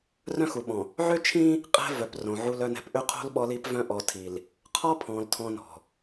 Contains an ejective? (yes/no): yes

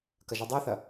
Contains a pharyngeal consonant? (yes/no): no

